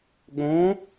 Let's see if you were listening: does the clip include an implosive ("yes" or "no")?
yes